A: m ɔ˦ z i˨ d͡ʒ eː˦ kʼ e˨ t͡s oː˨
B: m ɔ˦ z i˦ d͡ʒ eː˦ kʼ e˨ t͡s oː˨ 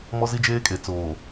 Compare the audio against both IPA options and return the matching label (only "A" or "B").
B